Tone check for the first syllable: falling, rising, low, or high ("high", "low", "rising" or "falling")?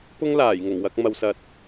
high